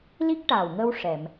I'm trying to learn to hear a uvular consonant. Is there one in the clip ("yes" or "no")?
no